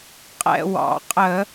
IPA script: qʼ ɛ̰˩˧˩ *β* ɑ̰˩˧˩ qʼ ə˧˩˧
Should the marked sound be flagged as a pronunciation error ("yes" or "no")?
yes